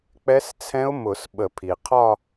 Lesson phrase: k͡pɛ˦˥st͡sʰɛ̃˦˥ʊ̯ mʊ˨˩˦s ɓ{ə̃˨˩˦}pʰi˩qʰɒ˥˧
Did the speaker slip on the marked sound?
yes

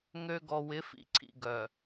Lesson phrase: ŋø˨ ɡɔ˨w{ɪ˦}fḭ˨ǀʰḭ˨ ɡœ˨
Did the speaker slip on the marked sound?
yes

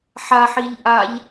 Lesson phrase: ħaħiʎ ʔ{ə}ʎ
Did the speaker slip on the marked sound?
yes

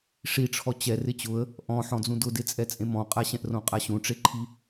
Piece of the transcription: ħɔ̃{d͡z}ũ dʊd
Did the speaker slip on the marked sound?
no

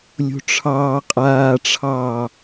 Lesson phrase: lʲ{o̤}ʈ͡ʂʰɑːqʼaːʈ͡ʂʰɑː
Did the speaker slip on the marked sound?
no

